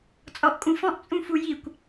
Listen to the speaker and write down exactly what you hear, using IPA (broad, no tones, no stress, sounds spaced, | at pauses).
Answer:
t͡sʼ ɔ ʔ kʼ ũ f ɔ̃ ʔ t͡sʼ ũ f u j i kʷ